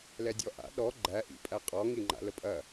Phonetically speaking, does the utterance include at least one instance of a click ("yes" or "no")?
yes